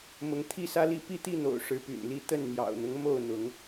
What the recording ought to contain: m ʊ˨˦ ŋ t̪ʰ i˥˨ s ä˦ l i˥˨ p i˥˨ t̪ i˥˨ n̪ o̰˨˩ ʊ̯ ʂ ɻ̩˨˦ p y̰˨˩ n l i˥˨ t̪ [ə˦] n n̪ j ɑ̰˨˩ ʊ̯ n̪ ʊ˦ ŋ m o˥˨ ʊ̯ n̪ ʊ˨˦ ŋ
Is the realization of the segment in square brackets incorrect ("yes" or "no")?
yes